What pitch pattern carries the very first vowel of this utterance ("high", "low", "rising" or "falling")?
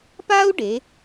high